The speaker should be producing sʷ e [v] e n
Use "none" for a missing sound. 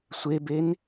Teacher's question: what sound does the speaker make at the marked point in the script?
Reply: b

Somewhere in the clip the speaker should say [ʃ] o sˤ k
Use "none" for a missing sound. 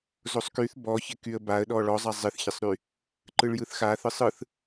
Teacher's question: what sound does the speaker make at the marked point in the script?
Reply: z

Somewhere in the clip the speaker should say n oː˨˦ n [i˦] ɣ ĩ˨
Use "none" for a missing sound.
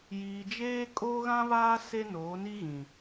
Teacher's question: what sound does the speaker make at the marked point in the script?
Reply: i˦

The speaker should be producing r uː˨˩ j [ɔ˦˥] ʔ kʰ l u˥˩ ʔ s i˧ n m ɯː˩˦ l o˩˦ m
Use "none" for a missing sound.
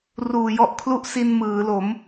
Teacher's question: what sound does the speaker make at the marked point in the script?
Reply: ɔ˦˥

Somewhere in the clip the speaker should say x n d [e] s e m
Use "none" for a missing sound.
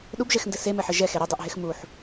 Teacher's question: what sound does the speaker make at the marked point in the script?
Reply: ɘ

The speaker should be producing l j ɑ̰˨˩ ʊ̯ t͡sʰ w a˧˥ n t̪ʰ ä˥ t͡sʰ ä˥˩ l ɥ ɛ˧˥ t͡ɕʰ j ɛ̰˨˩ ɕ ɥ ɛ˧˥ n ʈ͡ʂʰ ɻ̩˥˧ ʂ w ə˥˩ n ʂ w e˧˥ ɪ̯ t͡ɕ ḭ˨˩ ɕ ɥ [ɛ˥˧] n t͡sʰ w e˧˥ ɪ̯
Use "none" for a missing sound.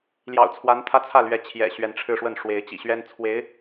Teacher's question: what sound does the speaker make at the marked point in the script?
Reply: ɛ˥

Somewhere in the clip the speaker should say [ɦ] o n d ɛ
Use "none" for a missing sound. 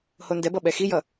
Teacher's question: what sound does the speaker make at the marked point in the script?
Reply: h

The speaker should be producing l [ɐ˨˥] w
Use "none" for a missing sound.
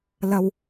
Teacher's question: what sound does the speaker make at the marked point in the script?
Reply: ɐ˧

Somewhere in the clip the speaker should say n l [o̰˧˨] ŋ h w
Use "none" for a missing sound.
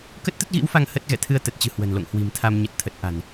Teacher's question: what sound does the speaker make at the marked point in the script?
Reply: o̰˧˨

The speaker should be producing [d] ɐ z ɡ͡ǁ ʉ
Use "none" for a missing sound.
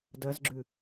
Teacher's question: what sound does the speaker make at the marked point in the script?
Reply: d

